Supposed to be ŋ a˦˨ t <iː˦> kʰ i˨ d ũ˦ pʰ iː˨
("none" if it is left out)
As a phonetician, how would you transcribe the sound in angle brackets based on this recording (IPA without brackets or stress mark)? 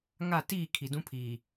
iː˦˨